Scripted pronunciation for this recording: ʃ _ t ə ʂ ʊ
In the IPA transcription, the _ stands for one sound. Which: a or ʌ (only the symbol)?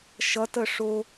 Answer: ʌ